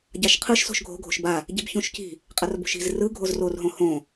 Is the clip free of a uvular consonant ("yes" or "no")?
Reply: no